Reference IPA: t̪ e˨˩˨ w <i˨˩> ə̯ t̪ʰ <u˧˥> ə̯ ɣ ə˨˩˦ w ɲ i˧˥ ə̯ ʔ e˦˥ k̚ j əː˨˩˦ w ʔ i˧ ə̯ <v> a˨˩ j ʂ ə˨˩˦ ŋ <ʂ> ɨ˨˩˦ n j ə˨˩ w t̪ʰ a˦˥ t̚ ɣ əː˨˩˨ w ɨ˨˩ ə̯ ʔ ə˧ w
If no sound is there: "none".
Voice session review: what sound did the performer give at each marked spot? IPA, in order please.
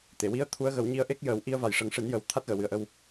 i˧, u˧˥, v, ʂ

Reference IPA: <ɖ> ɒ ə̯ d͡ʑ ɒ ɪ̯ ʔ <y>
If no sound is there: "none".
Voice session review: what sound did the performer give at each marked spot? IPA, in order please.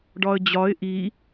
ɖ, i

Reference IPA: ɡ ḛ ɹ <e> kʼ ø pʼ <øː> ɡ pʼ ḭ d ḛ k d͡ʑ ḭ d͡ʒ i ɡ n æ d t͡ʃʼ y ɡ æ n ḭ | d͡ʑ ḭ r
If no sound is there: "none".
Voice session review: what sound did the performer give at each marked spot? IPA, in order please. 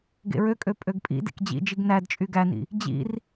ø, ø

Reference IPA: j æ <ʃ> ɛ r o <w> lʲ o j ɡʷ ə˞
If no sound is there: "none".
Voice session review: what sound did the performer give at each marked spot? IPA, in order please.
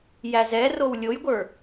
z, w

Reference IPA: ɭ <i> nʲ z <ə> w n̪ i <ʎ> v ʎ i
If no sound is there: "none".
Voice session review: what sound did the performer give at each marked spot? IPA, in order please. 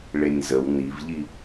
e, ə, none

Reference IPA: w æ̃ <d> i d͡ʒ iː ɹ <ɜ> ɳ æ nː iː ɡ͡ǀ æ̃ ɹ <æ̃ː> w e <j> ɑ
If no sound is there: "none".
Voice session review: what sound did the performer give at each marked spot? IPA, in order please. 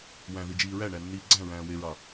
ð, æ, æ̃ː, ɹ

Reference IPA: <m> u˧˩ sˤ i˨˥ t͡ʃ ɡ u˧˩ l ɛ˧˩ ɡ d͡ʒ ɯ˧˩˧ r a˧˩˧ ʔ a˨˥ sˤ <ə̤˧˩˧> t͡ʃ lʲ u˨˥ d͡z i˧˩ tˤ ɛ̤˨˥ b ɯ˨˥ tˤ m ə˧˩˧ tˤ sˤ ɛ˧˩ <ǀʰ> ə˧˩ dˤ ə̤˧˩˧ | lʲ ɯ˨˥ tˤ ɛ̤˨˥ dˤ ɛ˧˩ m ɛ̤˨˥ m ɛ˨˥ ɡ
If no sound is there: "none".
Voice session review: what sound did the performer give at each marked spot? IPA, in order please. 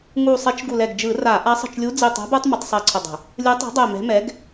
ŋ, ə̤˧˩, ǀʰ

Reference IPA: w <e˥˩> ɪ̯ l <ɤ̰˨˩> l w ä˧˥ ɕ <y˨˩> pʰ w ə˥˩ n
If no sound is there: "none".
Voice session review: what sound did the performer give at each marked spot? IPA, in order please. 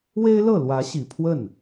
e˥, ɤ˥˩, i˨˩

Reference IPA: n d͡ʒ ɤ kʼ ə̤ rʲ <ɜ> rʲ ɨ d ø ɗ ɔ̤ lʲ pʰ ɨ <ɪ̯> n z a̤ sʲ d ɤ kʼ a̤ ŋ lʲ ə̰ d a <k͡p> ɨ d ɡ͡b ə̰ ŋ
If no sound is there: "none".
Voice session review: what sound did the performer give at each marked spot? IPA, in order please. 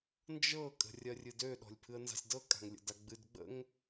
ɜ, ə̯, ɡ͡b

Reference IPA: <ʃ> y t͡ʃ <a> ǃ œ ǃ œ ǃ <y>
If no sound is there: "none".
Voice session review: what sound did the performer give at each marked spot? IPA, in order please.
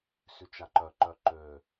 s, a, ø

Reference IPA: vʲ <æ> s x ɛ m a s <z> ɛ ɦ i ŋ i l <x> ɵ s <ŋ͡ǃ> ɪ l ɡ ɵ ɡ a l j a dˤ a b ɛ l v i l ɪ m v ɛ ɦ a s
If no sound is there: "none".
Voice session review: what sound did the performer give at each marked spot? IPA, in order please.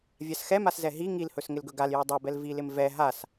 a, z, h, ŋ

